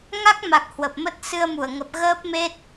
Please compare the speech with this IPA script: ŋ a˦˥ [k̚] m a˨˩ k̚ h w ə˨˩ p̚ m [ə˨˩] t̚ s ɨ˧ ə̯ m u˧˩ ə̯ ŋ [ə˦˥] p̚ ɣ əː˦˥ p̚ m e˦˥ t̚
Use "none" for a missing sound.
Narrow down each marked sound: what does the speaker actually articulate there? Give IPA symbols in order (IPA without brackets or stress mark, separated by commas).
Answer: k̚, ə˦˥, ə˨˩